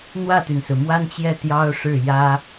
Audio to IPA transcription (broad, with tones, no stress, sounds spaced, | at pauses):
n̪ w ä˥˩ t̪ y˩ n s ɹ̩˩ m w a˥ n t͡ɕ j ɛ˥˩ t̪ j ɑ˥ ʊ̯ ʂ ɻ̩˥˩ j ä˥